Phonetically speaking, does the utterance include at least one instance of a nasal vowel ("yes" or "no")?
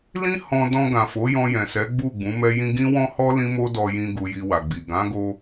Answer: yes